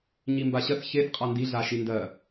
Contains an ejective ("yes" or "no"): yes